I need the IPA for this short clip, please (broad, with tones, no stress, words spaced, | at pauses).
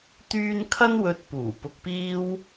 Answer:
t̪yː˥n kʰɐ˥nwɵ˧t̚puː˨˩ pʊ˧k̚piː˥w